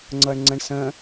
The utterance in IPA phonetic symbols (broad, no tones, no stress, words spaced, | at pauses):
ŋ͡ǀɤɳŋ͡ǀə̃ɳsə̃